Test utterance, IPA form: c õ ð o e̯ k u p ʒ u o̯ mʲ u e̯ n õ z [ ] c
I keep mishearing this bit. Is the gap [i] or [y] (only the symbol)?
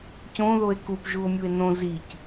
i